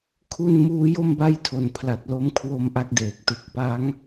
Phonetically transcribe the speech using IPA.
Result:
kʰu˧n muː˦˥jo˥˩mba˥˩jtʰo˨˩n pʰla˨˩t̚lo˦˥m kʰwo˧m ʔa˥˩k̚deː˨˩k̚tɯ˦˥k̚ pa˦˥ŋ

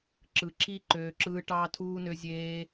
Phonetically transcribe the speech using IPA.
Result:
ǁɯ˨ǁi˦ ǃøː˧ǁɯː˦ ʈɑː˦tʰuː˦ nø˦zʲeː˦

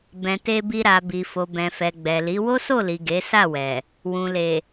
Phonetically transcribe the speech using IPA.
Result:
bɛ̃˨te˧bi˧ ɾa˨bi˨fo˨ bɛ̃˨fɛ˨ ɡ͡bɛ˨li˨˦ wo˦so˦˨li˨ ɡe˨˦ sa˦˨wɛ˨ | wũ˨le˨

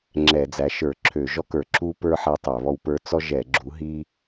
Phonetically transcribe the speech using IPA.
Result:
ŋ͡ǁɛ˧˩˧d͡zæ˨˥ʃə˞˧˩˧ ǁʰø˧˩˧ʒɔ˥kə˞˧˩˧ ǁu˥pə˞˥ ħæ˥tˤæ˧˩˧βɔ˥wpə˞˥ t͡sɔ˥ʒɛ˧˩˧ɡ͡ǁu˨˥ ɦi˥

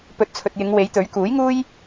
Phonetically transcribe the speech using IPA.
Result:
pɵ˨˥t̚t͡sʰɵ˨t̚jɪ˨˧ŋ we˨˥jt̪ɵ˨˥ɥ kuː˨˥jŋuː˥j

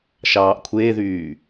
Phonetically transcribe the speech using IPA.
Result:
ʃɑːʔkʷʰeðyː

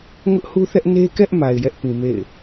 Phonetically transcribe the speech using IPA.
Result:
ŋʊ˦ʔhu˦θɛ˦ʔ ne˦kɛ˦ʔ ma˨ɪ̯jɛ˦ʔpĩ˨ mḛ˦˨ɪ̯

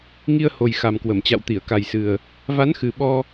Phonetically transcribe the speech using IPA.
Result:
ŋi˧ə̯ ho˨˩jxa˨˩mkwə˧˩mt͡ɕa̰˧˨w t̪i˧˩ə̯ka˨˩jsɨ˨˩ə̯ | va˨˦nxɨ˨˩ ɓɔ˧

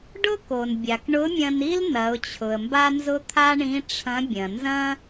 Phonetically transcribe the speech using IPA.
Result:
ɖʊ˥ko˩nbʲa˩k ɳʊ˧˥mʲɐ̃˧ni˥l nɐ˩˧ʊ̯t͡ɕʰʊ˩ə̯mba˥nzʊ˥ t̪ʰa˥ɳĩ˧˥ ʈ͡ʂʰɐ̃˧˥bʲɐ̃˩ nzɐ̃˥

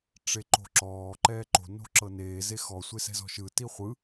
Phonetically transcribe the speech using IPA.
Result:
ʈ͡ʂeǃo̤ǁɔː ǃɛːǃo̤ no̤ǁɤneː zexɔ sʷesɛ̤zɔ̤ʃɯ tiχʷɯ

